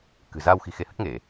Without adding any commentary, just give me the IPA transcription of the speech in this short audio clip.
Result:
k ɨ̤˨˩ z aː˧ w x i̤˨˩ x e˨˦ h ə˦˥ t̚ ŋ e˧˩˨

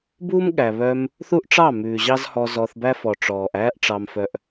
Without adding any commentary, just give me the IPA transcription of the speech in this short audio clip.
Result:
b uː˦ m ɠ æ˨ β œ˧ m | θ u˦ ʔ ʈ͡ʂ ɑ˦˨ m ʉː˨ ʑ ɑ˦ z h ɔ˧ z ɔ˧ θ b æ˦ f ɔ˨ ʈ͡ʂ ɔː˨ ʔ æː˦ ʔ ʈ͡ʂ ɑ˧ m f œ˧ ʔ

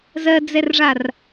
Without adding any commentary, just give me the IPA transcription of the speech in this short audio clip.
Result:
z ɜ d͡z ɛ r ʐ a r

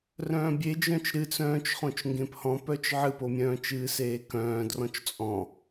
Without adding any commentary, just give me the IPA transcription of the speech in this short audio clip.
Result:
r œ̃ː bʲ e d͡ʒ œ̃ t͡ʃ ɾ ɨ t͡s œ̃ː t͡ʃ χ õ t͡ʃ ŋ ɡ ẽ p h ɔ̃ p œ t͡ʃ ʕ ɨ p o mʲ œ̃ː t͡ʃ ɨː s eː k œ̃ː d r ɔ̃ t͡ʃ t͡sʼ ɔ̃

